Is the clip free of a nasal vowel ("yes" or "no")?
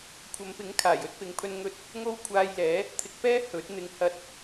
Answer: yes